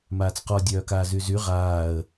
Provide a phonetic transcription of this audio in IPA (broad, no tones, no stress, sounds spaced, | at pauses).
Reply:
m aː t͡s q ɔ dʲ œː k aː z y z y ʁ aː ə̯